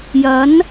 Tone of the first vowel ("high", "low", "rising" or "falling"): rising